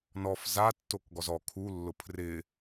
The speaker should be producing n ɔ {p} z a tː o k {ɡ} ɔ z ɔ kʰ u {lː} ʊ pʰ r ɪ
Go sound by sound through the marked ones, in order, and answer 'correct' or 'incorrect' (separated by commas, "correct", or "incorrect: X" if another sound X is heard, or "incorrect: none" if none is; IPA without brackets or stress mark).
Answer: incorrect: f, correct, correct